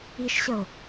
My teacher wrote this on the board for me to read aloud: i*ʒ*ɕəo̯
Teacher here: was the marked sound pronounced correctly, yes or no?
no